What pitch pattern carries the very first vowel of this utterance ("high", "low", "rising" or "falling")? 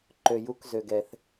low